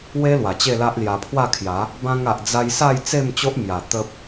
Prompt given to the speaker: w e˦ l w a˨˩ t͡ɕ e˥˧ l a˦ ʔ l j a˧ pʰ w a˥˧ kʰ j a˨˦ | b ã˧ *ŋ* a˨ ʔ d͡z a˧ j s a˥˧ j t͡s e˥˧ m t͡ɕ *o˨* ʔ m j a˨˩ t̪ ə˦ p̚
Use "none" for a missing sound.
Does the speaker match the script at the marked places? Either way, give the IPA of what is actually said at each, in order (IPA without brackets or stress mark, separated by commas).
ŋ, o˦